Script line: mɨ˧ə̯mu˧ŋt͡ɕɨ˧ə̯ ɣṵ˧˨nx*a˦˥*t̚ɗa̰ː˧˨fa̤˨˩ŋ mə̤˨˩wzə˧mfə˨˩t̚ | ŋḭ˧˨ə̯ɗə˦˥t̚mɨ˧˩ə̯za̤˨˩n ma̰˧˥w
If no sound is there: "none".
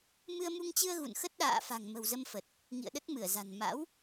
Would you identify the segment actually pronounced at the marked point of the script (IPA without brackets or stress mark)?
ə˦˥